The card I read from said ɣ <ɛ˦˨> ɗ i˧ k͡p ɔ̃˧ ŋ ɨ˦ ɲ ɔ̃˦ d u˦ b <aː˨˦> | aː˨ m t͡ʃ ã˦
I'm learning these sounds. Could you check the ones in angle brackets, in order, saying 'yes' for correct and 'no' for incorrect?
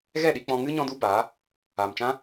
yes, yes

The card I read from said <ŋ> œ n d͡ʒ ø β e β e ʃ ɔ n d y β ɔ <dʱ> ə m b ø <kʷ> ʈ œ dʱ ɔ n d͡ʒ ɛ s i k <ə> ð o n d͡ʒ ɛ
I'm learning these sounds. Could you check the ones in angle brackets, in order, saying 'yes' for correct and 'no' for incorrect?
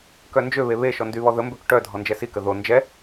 no, no, no, yes

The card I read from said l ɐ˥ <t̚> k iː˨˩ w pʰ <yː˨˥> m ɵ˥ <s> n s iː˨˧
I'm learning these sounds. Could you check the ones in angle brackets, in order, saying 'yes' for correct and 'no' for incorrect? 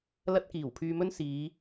yes, no, no

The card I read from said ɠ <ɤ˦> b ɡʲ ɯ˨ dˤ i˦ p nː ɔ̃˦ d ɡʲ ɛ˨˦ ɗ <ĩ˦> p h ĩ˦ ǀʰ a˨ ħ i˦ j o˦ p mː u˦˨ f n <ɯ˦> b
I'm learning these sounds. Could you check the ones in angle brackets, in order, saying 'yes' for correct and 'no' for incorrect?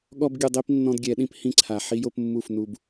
no, yes, no

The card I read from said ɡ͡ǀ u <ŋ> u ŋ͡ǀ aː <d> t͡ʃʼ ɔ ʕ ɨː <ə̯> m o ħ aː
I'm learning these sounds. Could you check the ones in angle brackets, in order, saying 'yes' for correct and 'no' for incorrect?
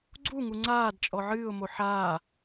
yes, yes, no

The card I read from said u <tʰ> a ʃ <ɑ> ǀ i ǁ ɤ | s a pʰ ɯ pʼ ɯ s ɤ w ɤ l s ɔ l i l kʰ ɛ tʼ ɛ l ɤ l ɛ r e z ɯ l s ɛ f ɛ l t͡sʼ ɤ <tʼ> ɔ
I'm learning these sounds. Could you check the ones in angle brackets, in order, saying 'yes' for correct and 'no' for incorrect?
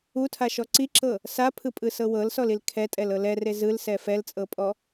yes, no, no

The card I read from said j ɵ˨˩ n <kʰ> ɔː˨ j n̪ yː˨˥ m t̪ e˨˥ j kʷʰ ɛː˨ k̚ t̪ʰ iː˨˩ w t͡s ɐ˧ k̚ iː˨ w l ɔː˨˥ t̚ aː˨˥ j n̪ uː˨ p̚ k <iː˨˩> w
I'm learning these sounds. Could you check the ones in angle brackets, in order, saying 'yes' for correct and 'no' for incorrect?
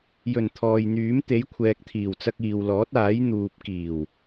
no, yes

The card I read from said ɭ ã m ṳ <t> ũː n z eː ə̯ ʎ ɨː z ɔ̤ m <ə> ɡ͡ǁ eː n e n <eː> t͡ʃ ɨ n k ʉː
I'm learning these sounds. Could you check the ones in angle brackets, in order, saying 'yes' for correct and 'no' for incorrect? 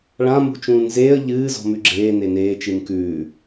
no, no, yes

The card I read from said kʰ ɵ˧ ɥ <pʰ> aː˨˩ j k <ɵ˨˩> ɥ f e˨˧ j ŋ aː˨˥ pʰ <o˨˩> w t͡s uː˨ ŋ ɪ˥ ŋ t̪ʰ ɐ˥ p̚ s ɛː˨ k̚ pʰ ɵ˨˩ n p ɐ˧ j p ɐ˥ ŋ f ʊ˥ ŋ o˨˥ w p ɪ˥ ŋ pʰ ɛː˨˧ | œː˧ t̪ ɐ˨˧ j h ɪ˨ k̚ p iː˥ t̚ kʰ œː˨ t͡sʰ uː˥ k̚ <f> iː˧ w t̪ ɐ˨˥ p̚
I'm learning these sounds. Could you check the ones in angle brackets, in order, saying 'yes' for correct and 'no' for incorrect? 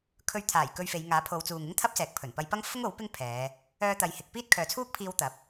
no, no, no, no

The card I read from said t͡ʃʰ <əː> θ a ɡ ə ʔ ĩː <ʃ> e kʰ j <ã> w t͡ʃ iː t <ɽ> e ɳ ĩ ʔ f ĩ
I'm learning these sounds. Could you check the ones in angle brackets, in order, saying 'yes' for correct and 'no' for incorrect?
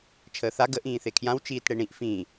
yes, no, yes, yes

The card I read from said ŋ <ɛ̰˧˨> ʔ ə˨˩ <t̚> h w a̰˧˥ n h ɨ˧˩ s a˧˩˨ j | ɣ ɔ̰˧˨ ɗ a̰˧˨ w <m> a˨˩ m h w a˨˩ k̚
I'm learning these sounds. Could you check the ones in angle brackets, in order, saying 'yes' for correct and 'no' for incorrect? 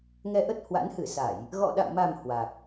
no, yes, yes

